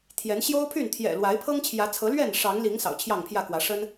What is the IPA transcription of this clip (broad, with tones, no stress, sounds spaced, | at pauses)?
t̪ʰ j ɛ˨˦ n ɕ j o˦ ʊ̯ pʰ y˥˨ n t̪ʰ j ɛ̰˨˩ l w a˨˦ ɪ̯ pʰ ɤ˦ ŋ t͡ɕʰ j ä˨˦ t͡sʰ ɤ˨˦ l ɥ ɛ˥˨ n ʂ ɑ˨˦ ŋ l i˨˦ ŋ s ɑ̰˨˩ ʊ̯ t͡ɕʰ j ɑ˥˨ ŋ pʰ j ä˥˨ k w ä˨˦ ʂ ə˦ n